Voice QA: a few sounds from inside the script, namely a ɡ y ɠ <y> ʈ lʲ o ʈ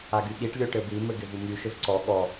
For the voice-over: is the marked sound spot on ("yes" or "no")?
no